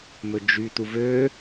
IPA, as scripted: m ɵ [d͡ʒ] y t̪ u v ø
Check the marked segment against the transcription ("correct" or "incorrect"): correct